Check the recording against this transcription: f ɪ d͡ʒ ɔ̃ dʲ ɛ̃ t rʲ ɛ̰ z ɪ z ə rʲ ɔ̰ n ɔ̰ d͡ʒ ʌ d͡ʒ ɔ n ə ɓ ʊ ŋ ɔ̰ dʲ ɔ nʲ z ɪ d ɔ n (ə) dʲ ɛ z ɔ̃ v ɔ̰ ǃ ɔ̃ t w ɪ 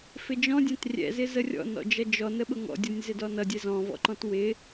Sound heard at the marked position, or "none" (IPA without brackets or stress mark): ʌ